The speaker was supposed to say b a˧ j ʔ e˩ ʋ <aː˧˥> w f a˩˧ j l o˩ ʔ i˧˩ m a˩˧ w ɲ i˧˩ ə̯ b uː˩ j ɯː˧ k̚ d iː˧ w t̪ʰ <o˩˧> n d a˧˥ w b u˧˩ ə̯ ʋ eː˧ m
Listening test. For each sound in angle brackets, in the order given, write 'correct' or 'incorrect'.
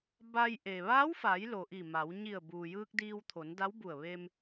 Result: correct, correct

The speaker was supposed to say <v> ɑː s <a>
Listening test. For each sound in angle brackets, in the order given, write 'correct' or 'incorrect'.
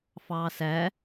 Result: incorrect: f, incorrect: æ

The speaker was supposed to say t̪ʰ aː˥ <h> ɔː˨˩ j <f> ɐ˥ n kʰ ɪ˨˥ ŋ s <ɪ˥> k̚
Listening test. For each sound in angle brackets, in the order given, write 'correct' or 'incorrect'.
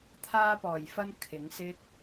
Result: incorrect: p, correct, correct

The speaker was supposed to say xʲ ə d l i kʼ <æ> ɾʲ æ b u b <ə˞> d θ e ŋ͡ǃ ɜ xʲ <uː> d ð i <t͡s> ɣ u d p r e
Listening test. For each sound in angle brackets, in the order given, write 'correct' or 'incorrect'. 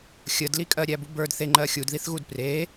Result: incorrect: ɜ, correct, incorrect: u, incorrect: θ

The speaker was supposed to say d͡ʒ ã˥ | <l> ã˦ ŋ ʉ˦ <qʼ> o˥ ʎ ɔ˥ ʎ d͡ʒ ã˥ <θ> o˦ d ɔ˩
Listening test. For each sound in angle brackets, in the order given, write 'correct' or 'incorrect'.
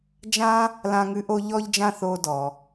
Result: correct, incorrect: ʔ, correct

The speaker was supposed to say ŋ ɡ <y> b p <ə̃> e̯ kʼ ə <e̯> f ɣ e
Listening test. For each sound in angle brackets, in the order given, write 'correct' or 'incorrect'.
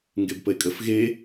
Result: incorrect: e, incorrect: ə, incorrect: none

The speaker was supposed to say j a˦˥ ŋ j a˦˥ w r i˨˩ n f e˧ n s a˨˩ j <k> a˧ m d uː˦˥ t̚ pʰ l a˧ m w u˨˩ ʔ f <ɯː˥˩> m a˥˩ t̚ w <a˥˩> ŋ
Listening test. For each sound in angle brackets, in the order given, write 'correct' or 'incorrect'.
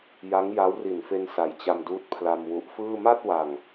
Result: incorrect: t͡ɕ, correct, incorrect: a˨˩

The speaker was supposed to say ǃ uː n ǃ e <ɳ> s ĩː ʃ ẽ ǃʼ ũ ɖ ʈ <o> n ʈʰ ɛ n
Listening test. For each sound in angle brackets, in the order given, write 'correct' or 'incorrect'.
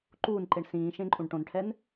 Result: correct, incorrect: õ

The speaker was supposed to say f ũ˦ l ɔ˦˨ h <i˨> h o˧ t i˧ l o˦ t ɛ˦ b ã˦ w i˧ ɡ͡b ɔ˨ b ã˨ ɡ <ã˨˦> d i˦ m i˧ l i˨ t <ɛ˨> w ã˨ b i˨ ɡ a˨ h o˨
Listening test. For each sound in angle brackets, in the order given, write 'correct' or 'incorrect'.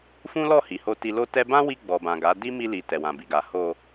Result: correct, incorrect: a˨˦, correct

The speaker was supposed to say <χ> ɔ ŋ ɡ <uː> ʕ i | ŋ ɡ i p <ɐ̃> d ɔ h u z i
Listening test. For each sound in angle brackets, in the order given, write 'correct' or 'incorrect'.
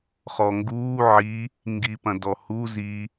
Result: correct, correct, correct

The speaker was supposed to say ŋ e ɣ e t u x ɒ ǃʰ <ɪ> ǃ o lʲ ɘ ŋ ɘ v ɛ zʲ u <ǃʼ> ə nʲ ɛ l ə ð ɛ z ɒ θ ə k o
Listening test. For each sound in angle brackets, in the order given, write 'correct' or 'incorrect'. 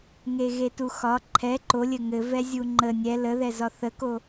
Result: incorrect: ɛ, incorrect: ŋ͡ǃ

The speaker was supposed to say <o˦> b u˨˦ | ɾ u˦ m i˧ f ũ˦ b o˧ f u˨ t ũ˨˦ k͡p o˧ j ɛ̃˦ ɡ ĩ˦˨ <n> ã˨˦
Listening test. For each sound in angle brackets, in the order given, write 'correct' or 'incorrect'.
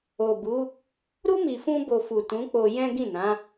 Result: incorrect: o˨, correct

